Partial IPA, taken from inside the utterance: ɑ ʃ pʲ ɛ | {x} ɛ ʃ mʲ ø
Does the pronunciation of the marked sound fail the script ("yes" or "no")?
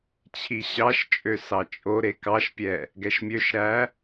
yes